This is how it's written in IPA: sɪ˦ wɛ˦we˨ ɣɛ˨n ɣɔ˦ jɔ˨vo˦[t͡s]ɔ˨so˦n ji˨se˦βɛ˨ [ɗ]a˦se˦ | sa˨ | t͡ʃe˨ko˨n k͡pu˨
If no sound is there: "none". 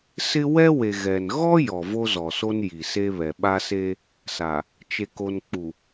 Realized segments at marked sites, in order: z, ɓ

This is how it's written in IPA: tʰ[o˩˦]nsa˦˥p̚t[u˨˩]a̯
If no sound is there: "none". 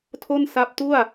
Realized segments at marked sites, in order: o˥˩, u˥˩

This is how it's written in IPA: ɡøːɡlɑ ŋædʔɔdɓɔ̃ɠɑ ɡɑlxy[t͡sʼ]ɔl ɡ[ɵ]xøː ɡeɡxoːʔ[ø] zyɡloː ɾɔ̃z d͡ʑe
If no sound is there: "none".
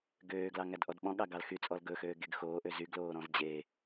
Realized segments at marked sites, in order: t͡sʼ, ɵ, ø

